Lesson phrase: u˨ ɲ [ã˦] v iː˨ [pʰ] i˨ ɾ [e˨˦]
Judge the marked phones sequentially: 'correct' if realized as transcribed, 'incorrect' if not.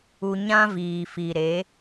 correct, incorrect, correct

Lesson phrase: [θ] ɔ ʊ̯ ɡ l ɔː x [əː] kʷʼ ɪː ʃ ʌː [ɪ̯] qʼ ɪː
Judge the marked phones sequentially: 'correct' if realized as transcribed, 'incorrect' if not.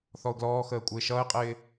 correct, correct, correct

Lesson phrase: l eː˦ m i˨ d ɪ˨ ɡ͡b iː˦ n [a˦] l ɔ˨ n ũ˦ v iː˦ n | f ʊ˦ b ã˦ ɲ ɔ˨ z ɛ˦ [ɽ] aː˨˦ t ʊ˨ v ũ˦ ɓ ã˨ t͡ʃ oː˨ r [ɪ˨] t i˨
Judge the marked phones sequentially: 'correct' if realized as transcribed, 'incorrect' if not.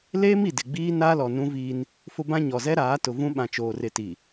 correct, incorrect, correct

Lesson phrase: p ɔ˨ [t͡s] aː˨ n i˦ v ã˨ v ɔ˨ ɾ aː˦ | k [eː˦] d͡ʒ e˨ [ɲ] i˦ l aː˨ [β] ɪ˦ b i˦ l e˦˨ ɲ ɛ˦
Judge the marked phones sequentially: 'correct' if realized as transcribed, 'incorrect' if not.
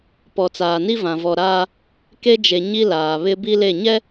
correct, incorrect, correct, correct

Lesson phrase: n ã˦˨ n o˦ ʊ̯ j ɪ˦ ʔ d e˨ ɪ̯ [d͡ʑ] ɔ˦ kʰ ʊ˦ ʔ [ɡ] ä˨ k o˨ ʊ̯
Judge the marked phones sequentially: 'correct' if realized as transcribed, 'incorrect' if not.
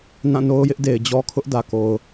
correct, incorrect

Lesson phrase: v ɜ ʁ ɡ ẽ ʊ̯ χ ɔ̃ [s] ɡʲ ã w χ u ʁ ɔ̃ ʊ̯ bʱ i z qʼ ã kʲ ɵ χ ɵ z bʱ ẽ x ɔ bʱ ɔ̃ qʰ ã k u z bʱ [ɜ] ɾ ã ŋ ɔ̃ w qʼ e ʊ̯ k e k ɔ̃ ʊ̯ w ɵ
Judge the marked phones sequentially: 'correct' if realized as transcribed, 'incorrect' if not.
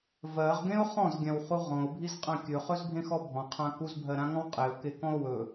incorrect, correct

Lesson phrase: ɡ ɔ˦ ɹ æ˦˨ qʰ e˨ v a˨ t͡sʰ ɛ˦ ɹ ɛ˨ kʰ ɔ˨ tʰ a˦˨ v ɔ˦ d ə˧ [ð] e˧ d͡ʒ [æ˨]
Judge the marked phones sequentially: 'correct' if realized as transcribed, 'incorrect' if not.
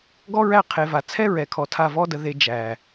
correct, correct

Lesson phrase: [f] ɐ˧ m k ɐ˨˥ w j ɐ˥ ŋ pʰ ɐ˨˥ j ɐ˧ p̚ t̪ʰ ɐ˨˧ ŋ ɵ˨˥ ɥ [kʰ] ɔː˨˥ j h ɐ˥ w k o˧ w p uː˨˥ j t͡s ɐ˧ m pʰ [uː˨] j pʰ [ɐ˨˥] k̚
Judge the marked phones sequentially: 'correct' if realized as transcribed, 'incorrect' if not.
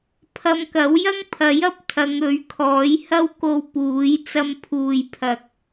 incorrect, correct, correct, incorrect

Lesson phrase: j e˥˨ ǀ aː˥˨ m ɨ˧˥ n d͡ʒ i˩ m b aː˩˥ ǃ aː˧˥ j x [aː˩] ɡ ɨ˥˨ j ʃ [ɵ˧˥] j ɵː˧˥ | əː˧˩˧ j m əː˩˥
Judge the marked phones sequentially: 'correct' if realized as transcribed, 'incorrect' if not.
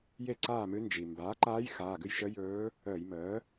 incorrect, incorrect

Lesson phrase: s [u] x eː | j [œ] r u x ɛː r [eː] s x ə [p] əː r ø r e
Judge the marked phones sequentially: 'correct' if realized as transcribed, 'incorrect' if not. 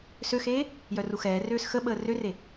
incorrect, correct, incorrect, incorrect

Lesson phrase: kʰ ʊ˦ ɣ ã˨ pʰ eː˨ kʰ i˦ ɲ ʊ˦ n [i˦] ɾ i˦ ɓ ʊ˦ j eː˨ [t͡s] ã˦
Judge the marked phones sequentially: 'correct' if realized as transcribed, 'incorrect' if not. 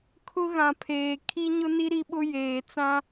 correct, correct

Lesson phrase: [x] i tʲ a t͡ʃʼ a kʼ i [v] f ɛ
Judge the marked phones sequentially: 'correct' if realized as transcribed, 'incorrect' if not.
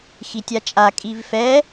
correct, correct

